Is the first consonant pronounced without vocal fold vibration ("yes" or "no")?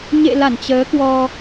no